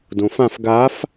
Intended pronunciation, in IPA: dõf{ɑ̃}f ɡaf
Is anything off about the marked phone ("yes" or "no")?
yes